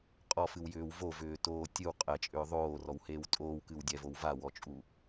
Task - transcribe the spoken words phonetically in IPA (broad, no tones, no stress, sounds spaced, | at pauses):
qʼ ɔ f ɨ w j ʏː w v o v ʏː t oː tʲ ɨ w qʼ ɛ t͡ʃʼ ʏː ðˤ oː r ɔ w h eː w tʼ oː w k ɨ w dʲ ɛ v o w v a w ɔ t͡ʃʼ u